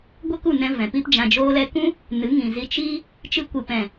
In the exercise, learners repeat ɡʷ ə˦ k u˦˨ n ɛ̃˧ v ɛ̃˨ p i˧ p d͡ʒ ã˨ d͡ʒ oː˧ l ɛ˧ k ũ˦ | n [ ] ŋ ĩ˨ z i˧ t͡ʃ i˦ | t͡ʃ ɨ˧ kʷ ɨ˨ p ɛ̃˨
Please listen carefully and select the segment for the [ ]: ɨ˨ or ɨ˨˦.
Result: ɨ˨˦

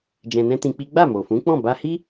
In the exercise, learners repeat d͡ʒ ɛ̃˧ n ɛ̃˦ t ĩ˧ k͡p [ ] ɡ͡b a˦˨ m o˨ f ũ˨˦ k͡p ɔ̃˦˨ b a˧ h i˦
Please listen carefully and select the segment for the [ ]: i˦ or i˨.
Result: i˦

